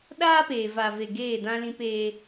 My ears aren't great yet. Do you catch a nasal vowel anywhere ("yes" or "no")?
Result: yes